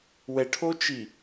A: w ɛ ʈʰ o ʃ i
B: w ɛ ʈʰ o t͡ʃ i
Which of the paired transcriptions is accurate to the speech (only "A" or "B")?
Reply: B